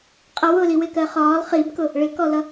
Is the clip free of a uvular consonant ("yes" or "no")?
no